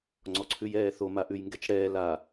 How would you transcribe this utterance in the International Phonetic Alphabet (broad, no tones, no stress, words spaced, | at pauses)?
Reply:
ŋ͡ǀɔǀʰʉjɛːθo maʔʉjŋɡɛt͡ʃɽɛː la